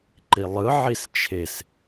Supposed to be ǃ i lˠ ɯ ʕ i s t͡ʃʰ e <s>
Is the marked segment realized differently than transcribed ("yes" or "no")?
no